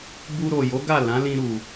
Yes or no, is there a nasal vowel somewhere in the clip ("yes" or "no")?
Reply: yes